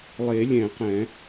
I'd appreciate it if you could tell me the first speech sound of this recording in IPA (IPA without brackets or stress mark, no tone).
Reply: lˠ